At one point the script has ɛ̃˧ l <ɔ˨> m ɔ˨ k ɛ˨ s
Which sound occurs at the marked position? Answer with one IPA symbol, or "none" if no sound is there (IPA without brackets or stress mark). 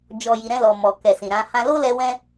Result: ɔ˨